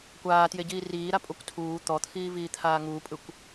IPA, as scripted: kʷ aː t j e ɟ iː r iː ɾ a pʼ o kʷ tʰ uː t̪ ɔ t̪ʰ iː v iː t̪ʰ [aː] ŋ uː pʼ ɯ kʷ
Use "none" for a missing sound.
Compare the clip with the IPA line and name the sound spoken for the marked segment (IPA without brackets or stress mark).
aː